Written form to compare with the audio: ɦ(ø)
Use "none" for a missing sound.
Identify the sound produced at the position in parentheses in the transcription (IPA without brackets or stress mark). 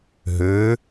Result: ø